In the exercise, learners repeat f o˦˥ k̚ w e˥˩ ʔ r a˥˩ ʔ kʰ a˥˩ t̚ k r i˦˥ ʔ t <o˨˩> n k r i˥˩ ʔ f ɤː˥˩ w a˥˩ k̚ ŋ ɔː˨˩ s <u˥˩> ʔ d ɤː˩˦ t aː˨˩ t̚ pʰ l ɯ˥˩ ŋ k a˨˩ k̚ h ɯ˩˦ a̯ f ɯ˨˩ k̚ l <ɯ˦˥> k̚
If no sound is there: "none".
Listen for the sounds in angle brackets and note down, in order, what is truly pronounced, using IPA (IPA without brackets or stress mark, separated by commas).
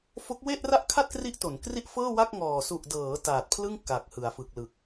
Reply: o˩˦, u˨˩, ɯ˨˩